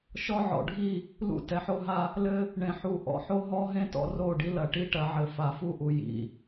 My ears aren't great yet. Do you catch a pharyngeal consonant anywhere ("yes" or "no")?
yes